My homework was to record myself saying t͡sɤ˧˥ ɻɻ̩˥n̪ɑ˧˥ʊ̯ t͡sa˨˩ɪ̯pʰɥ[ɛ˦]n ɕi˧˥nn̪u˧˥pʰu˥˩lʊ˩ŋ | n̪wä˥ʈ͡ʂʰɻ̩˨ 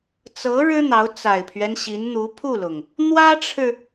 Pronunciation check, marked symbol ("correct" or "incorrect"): correct